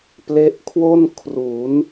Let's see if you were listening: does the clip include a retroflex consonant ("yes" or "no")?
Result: no